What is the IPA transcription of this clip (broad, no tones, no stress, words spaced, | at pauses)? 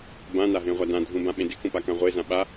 bãnaɦẽʁʷa dãdʱũbãɓẽ dɪkũpakã ʁʷezã ɓa